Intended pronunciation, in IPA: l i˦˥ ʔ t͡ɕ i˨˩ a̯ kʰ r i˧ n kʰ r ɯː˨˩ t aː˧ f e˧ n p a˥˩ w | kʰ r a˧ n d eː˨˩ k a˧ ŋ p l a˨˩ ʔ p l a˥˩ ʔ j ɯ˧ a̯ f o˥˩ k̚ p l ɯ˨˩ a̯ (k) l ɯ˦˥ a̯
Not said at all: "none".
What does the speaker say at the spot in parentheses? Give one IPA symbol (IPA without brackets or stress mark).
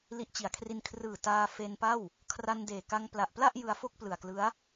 k